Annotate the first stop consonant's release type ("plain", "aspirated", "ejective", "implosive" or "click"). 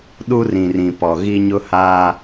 implosive